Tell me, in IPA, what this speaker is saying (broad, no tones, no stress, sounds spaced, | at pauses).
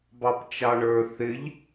b ɑ p t͡ʃ ɑ ɳ ə˞ θ ɪ ʎ